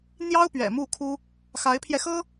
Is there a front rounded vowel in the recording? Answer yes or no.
no